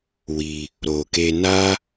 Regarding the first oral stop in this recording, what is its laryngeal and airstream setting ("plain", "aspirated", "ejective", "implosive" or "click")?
plain